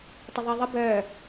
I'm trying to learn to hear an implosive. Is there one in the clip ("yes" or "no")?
no